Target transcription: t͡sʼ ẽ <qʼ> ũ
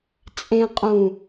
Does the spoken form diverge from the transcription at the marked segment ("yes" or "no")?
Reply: no